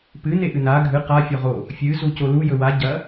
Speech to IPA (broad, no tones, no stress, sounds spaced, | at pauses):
p ɨ n e ʔ ɨ n a ɡʱ ɨ q a fʲ o ʁ o | fʲ ɨ z u c o l u j ɵ w a ɟ ɐ